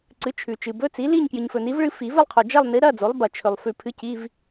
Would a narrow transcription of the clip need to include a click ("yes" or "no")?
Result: yes